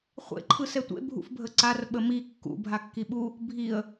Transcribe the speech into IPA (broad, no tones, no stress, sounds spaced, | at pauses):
χʷ ḛ ǃʰ ɯ s ɛ tʷ ḛ bʱ ṵ f bʱ ə ǀ a r ɓ ə m i kː ṵ bʱ a kː i ɓ u | bʱ i ə̯